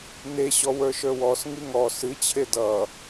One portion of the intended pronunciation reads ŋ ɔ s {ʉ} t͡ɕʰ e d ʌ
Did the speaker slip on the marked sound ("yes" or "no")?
yes